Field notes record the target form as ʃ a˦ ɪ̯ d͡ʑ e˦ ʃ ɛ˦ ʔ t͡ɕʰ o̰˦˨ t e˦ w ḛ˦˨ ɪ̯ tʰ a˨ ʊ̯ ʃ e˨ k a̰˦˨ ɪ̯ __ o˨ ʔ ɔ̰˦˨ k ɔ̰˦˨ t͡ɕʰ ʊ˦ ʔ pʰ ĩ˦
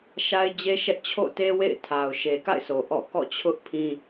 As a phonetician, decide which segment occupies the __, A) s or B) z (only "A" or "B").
A